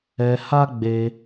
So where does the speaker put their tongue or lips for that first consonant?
throat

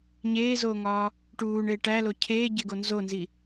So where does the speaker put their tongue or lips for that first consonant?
palate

